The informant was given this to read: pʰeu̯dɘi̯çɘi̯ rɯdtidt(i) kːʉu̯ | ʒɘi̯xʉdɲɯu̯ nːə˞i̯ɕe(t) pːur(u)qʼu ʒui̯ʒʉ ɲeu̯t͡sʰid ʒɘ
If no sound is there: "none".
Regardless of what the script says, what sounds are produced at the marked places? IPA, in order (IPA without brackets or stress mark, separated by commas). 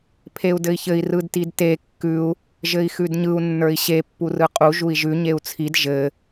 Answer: e, none, ɯ